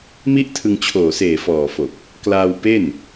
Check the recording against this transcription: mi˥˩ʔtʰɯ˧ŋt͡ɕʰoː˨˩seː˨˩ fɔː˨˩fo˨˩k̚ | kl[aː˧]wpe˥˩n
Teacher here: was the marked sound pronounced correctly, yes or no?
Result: yes